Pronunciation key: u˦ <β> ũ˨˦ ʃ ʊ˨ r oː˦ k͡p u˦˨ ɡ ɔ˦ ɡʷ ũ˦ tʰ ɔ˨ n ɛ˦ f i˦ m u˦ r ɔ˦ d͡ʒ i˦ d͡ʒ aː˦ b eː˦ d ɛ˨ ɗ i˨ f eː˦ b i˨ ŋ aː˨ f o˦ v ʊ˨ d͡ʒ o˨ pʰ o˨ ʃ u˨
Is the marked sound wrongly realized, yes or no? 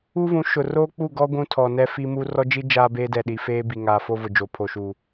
yes